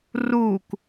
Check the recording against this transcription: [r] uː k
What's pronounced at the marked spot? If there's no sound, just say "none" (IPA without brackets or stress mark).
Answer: r